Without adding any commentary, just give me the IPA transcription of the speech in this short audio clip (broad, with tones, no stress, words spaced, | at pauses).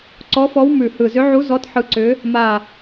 ǀɔ˧˥fɔ˧˥w mʉ˨˩hɯ˨˩zʏ˧˥ʕu˧˥ zɔ˧˥t ħɯ˧˥ǀʏ˧˥ | ma˨˩